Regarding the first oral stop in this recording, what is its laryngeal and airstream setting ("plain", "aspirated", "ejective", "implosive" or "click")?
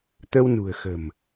plain